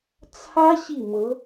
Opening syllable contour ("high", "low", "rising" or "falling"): high